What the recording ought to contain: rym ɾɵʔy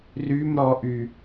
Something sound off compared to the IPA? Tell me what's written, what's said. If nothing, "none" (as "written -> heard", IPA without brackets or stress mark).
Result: ɵ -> ɔ